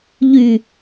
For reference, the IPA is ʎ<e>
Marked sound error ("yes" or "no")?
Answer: yes